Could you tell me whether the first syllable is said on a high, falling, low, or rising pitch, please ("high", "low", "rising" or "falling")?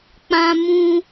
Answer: high